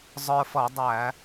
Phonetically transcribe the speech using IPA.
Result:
zˤ ə˞˧ f ʌ˧˩˧ dˤ æ˧˩˧

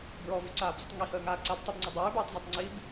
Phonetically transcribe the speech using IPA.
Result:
b ɹ ɔ v y ǀ aː b z ə tˤ ŋ i h əː ŋ aː ǀ a b tˤ i b ŋ͡ǀ ʌ dˤ ʉː b ʉː tˤ z ɔ tˤ ŋ͡ǀ i b

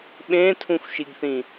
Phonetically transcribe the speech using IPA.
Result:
ɓ ẽ tʰ ũ xʷ ʃ i ɡ θ ĩ

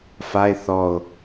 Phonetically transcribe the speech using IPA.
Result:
f a e̯ θ ɔ o̯

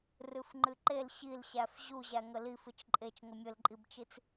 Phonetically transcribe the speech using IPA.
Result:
r ɨ f ŋ͡ǃ ɨ ǃ e l ɕ i l ɕ æ f ʑ u ʑ æ ŋ ə l i f ɨ t͡ʃ ǃʼ e t͡ʃ ŋ ə mʲ ə l ǃʼ i b t͡ʃ i t͡s

